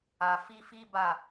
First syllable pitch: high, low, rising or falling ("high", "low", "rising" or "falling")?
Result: low